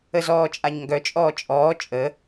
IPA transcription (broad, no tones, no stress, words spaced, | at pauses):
əzɔːt͡ʃʼaɲŋɡœ t͡ʃʼɔːt͡ʃʼɔː t͡ʃʼə